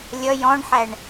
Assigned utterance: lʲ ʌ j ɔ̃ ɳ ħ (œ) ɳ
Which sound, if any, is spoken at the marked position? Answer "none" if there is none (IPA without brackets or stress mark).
æ